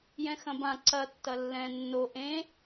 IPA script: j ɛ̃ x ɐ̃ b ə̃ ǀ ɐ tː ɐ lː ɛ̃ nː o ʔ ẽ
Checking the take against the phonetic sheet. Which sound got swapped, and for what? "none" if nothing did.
ə̃ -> ã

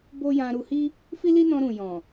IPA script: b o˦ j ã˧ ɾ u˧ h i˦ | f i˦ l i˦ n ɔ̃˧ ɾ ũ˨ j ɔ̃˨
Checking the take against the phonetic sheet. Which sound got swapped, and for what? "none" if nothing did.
none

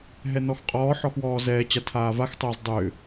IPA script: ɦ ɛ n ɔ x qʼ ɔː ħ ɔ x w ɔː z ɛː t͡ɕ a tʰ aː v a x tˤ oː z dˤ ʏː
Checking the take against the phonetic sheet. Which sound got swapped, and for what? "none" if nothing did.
none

